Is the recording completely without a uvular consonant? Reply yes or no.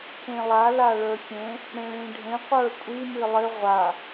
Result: no